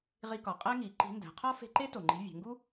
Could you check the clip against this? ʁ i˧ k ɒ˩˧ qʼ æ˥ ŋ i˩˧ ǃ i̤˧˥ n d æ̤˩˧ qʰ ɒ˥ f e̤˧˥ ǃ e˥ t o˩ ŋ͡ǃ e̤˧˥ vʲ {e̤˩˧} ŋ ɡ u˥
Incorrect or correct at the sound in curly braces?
correct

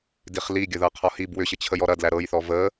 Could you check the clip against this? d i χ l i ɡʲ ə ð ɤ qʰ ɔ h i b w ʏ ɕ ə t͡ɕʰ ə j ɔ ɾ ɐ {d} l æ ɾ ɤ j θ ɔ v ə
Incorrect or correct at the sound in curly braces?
correct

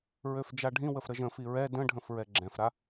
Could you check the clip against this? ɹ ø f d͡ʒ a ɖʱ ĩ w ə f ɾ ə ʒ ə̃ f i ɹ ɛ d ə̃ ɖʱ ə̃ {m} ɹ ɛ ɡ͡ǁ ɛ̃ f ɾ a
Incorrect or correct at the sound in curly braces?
incorrect: f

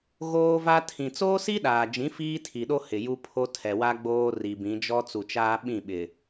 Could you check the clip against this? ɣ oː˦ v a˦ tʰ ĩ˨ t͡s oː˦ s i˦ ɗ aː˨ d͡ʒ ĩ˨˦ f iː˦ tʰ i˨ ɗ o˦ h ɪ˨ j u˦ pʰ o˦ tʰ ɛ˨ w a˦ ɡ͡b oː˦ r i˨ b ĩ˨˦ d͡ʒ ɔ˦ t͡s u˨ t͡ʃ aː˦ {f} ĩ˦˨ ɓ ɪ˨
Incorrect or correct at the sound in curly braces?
incorrect: ɓ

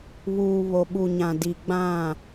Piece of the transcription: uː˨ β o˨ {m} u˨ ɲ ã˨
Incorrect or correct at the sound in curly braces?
incorrect: ɓ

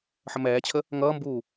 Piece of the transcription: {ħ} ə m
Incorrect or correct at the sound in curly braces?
correct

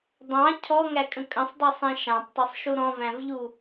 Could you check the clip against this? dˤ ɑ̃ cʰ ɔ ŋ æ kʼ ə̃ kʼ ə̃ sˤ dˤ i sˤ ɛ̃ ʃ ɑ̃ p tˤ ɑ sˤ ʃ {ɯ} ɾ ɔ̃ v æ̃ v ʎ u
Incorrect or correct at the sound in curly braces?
incorrect: u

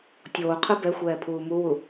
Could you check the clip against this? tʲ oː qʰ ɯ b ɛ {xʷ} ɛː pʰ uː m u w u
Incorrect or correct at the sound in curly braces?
correct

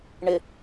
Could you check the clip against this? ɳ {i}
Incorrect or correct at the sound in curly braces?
incorrect: ɪ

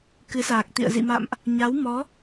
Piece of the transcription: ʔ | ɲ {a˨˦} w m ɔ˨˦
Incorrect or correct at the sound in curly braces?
correct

